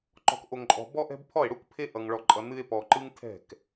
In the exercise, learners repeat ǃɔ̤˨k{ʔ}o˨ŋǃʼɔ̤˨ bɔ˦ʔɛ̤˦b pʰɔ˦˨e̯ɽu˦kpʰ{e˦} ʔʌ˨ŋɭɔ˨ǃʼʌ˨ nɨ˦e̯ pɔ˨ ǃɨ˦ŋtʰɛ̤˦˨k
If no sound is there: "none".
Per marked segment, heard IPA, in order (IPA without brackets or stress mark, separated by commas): ʔ, e˦